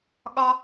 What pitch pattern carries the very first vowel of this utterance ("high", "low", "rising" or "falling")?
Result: high